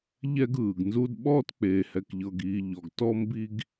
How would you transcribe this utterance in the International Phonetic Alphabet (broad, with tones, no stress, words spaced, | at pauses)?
ʎɛ˦ɡɯː˩ɡnzu˦d ɓɔː˥tk͡peː˨hɛ˨k ʎɤ˨ɡiː˨ ʎɔ˩ɡ tɔ˦ mbi˦ɡ